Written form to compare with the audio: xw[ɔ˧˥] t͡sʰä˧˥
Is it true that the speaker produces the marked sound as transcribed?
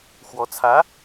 yes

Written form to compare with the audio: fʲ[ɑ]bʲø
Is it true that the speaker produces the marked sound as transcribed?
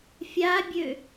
no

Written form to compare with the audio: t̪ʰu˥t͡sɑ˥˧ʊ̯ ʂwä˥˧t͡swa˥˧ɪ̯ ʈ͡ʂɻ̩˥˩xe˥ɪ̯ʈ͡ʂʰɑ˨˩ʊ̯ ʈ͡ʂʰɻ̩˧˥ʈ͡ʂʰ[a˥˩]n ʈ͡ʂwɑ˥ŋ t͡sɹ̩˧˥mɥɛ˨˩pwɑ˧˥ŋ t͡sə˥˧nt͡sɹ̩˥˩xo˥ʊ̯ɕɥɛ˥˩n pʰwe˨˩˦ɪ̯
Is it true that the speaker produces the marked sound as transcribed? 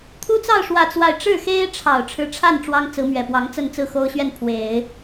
yes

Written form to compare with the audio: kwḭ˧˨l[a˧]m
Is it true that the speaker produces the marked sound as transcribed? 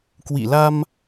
yes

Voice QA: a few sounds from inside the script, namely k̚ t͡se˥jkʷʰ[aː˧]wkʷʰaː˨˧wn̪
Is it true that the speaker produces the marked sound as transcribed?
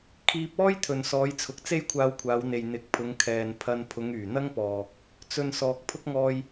yes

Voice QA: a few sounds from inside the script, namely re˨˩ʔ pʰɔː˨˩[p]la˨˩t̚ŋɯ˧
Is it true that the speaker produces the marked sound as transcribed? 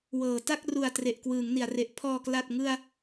no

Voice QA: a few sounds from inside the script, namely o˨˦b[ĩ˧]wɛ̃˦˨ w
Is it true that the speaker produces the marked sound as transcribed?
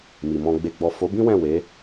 no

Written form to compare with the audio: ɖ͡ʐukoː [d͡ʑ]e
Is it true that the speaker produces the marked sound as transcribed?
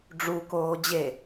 yes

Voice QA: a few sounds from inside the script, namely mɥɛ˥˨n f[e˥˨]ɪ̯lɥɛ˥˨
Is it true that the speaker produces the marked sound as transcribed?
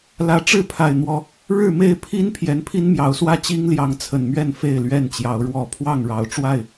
yes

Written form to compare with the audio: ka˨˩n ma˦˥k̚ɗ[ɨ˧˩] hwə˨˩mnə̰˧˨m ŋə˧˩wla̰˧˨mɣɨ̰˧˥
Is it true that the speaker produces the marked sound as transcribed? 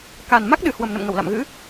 no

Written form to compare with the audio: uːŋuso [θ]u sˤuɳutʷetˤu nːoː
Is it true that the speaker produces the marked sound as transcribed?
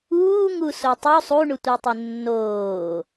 no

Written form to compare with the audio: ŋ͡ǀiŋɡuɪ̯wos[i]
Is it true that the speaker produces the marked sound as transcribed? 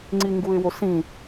no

